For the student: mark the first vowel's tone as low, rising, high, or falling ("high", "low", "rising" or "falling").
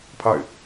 falling